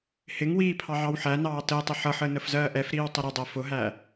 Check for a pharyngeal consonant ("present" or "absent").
present